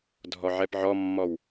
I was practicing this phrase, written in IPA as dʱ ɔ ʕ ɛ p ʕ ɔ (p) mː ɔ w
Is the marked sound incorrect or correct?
incorrect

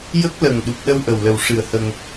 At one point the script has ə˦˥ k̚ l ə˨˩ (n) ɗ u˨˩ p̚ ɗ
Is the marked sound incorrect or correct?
incorrect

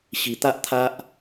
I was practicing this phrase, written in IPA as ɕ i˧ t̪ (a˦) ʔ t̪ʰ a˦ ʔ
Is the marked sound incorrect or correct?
correct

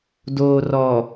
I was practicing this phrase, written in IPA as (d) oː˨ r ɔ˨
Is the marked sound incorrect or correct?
correct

